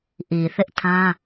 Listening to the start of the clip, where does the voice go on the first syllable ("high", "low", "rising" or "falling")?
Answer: low